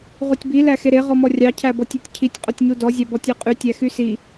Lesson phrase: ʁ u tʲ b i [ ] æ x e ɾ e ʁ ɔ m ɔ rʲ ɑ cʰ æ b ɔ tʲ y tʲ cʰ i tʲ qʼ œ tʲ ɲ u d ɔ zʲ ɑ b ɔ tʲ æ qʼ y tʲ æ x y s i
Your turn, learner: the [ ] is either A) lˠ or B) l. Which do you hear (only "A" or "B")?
B